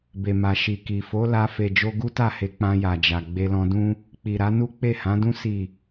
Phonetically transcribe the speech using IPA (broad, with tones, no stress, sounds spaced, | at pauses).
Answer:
b e˨ m a˨ ʃ i˨ k i˨ f o˨˦ l a˧ f e˨ d͡ʒ o˧ ɡ u˦ t a˦˨ h e˨˦ k͡p ã˧ j a˨ d͡ʒ a˨ ɡ͡b e˧ l ɔ̃˧ d ũ˦ | k͡p i˨ ɾ a˨˦ n u˦ k͡p e˦˨ h ã˨˦ d ũ˦ s i˦˨